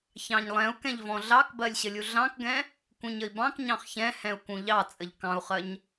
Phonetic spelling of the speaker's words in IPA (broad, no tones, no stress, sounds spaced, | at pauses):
ç ɑ̃ ɲ lˠ ɛ̃ u̯ k ɛ̃ ʎ v ɔ̃ ɮ ɑ k b ɜ lʲ ɕ ə lʲ u ɮ ɑ̃ k ɡ ɛ̃ | k ũ ɲ ə i̯ b ɑ̃ k ɲ ɑ̃ χ ç ɛ̃ h ɛ̃ u̯ k ũ ʎ ɑ t͡sʼ ə ʎ k ɑ̃ u̯ χ ɜ ɲ